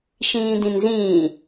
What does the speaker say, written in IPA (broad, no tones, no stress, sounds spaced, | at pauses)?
ʃ ĩː d ĩ n z ĩː